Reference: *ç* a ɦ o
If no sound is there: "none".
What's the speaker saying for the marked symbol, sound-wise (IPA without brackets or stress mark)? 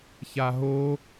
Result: ç